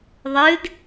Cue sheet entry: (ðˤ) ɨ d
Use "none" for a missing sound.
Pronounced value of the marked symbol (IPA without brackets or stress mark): ðˤ